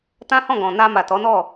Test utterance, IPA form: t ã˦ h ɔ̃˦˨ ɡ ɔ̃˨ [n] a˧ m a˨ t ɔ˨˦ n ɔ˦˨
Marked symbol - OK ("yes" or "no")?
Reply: yes